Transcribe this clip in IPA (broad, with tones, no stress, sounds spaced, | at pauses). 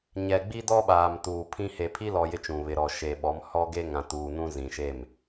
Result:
ɲ ɛ˨ ɡ͡b i˦ d ɔ˦ ɓ aː˨ m t uː˨ pʰ ĩ˦ h e˨ pʰ i˦ l ɔ˨ j ɪ˦ t͡ʃ ũ˨ β ɪ˨ ɾ ɔ˨ ʃ e˨ ɓ ɔ˨˦ m h ɔ˦ ɡ e˦ ŋ ã˨ t uː˨ n ũ˦ z ĩ˨ ʃ e˦˨ m